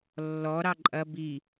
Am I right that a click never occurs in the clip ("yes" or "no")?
no